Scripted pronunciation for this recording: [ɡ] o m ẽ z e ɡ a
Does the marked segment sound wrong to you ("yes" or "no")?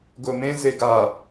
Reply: no